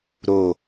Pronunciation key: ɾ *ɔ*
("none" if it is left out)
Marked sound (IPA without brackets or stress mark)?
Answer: o